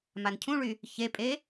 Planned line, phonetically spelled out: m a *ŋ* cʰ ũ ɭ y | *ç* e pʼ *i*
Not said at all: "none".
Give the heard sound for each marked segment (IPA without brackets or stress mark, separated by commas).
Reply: n, ç, e